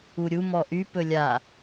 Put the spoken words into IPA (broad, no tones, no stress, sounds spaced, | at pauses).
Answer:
u ɾʲ u m ɔ ʔ y p ɵ lʲ a